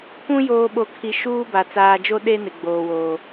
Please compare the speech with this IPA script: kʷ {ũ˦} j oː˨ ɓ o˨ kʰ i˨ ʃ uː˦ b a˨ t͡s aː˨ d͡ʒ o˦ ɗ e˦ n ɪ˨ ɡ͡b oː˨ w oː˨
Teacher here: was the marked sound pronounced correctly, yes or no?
yes